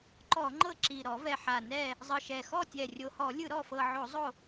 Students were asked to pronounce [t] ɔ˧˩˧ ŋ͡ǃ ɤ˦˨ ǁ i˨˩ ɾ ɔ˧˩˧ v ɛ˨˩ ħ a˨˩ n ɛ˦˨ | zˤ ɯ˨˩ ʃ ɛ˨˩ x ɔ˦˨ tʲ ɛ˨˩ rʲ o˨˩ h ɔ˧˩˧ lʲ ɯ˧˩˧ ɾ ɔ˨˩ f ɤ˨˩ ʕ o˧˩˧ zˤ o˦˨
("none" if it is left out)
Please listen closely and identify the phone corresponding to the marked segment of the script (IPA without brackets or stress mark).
ǃ